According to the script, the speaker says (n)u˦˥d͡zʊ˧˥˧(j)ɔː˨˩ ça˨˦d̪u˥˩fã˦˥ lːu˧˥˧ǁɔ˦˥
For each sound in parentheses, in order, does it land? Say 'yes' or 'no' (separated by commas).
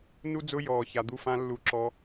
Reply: yes, yes